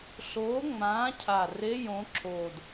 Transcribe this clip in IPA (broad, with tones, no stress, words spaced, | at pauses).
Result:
ɬoː˨˦ŋ͡mãː˨˦cʰa˨˩ re˧˥˧jõ˨˦ǁʰoː˨˩d